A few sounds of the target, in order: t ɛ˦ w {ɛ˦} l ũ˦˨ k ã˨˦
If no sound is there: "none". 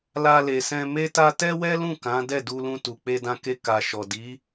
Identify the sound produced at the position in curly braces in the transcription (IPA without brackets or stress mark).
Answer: ɛ˦